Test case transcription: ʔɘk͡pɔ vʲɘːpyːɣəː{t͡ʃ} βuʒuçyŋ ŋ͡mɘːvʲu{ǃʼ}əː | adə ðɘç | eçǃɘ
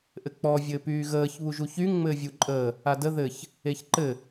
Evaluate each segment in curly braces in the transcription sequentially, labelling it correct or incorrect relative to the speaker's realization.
incorrect: ç, correct

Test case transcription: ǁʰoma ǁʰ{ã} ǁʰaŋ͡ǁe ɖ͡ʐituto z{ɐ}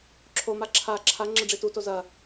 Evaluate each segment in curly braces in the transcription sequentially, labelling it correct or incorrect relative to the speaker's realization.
incorrect: a, correct

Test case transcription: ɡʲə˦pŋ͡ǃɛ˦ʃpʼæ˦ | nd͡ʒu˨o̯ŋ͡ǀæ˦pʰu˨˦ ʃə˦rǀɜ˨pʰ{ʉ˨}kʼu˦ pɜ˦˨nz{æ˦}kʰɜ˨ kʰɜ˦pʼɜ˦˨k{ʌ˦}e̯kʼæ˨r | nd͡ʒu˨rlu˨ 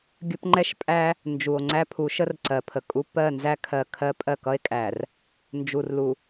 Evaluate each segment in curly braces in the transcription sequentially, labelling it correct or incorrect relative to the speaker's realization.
incorrect: ə˨, correct, correct

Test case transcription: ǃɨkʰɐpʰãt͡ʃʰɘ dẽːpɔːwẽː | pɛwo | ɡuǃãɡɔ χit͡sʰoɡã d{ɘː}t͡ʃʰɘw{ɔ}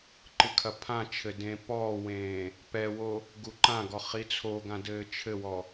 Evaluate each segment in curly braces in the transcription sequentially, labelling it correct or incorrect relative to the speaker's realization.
correct, correct

